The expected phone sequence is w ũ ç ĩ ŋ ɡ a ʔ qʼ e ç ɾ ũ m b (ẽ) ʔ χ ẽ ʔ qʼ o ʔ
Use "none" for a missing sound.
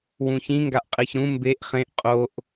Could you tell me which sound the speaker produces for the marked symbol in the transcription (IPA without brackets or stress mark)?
e